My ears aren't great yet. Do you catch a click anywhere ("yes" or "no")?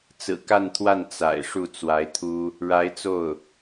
no